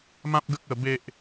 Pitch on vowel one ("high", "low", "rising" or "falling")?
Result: high